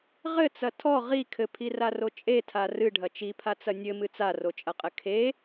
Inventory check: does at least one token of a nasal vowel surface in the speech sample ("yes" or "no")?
no